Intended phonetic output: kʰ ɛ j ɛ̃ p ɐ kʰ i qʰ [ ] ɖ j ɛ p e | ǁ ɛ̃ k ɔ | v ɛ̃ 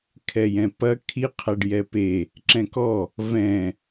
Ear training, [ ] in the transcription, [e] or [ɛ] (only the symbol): ɛ